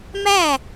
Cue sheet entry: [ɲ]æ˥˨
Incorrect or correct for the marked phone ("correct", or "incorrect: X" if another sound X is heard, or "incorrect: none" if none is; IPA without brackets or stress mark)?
incorrect: m